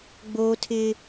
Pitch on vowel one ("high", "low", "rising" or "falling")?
high